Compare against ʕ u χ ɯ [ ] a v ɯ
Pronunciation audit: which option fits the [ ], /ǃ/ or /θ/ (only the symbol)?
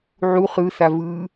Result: θ